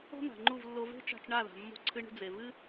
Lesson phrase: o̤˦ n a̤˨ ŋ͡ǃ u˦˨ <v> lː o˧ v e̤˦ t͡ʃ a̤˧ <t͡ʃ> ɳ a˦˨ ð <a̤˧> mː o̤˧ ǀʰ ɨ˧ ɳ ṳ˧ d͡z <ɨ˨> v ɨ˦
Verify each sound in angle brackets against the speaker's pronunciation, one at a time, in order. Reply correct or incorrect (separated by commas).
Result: correct, correct, incorrect, incorrect